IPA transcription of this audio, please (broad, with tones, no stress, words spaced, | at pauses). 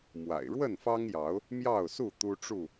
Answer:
mwa̰˨˩ɪ̯ ɻwə˥˨nfɑ˦ŋjɑ˨˦ʊ̯ | mjɑ˥˨ʊ̯su˥˨ t̪u˦ʈ͡ʂu˥˨